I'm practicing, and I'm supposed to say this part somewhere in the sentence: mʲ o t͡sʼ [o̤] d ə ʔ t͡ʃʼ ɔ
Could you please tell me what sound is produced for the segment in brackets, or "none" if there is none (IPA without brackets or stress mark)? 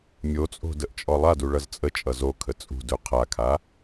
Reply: o̤